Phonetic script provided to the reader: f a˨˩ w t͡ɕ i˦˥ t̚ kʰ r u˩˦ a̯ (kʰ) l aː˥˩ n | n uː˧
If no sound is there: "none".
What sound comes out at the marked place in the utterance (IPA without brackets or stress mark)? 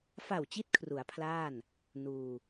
pʰ